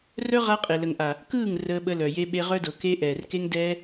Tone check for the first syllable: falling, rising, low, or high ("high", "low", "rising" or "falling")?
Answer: high